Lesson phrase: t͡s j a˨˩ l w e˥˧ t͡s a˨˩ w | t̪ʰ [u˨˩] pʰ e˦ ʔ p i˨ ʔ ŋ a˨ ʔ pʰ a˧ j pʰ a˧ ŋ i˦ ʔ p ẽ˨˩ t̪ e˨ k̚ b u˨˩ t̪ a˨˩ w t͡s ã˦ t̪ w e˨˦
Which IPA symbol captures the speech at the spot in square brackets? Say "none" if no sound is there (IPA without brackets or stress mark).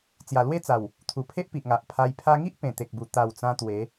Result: u˨˩